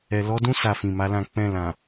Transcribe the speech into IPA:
ɛ˨ l ɔ˨˦ d ũ˦ s a˦˨ f ĩ˨ m a˨˦ l ã˦˨ k͡p ɛ̃˧ l ã˨

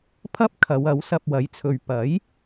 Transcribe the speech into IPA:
pʰ ɐ˥ p̚ kʰ ɐ˨˧ w ɐ˨˥ w s ɐ˧ p̚ w ɐ˨˥ j t͡sʰ ɵ˨ ɥ p ɐ˨˥ j

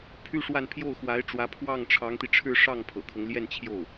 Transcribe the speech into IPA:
pʰ y˥ ʂ w a˥˧ n pʰ j o˥˩ ʊ̯ x w a˧˥ ɪ̯ ʈ͡ʂ w ä˧˥ pʰ w ɑ˥˩ ŋ ʈ͡ʂʰ ɑ˧˥ ŋ t̪ i˧ ʈ͡ʂʰ ɻ̩˥˧ ʂ ɑ˥˩ ŋ pʰ ɤ̰˨˩ kʰ ɤ˦ ŋ l j ɛ˥˧ n t͡ɕʰ j o˥˩ ʊ̯

